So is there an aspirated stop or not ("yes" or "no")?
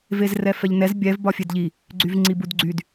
no